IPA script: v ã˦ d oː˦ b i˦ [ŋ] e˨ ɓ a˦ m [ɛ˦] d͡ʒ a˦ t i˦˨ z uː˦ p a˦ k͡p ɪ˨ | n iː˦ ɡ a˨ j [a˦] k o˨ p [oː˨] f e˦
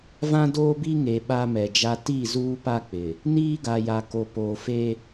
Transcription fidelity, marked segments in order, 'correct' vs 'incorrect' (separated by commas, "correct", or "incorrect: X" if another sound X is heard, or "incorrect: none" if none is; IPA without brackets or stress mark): correct, incorrect: ɛ˨, incorrect: a˨, correct